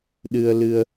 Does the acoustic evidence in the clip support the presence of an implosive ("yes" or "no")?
yes